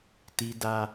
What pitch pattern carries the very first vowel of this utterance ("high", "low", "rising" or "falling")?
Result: high